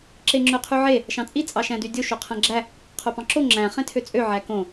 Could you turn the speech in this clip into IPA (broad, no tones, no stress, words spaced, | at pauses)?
ǁeŋ͡ǁøqʰyʕe | ʃɑ̃t͡sʼi t͡sʼɑʃæ̃dydʲo ʃoqʰæ̃ɡ͡ǁæ | qʰopɑ̃ǁo ŋ͡ǁæ̃ χẽtʰøt͡sʼø ʕækõ